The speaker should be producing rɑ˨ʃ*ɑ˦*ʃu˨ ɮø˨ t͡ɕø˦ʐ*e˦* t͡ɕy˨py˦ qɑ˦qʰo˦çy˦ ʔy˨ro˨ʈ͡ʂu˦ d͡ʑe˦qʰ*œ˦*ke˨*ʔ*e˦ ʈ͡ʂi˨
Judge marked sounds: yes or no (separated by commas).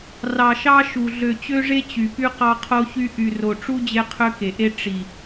yes, yes, no, yes